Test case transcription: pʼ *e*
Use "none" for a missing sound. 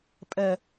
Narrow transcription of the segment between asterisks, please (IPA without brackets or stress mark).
ɛ